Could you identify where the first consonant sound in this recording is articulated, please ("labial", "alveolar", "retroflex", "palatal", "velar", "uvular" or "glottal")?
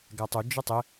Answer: velar